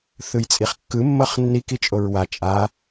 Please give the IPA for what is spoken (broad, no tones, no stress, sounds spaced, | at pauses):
θ ɯ j t͡sʼ i χ kː ɯ mː ɤ χ nː i k i t͡ʃʼ o ɹ w a t͡ʃʼ a